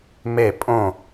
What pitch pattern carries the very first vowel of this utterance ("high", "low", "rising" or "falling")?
falling